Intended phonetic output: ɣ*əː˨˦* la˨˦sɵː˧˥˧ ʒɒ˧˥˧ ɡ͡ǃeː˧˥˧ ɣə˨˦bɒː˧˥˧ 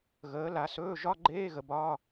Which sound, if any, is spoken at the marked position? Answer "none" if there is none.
əː˨˦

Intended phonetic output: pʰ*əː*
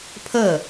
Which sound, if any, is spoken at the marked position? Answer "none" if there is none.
əː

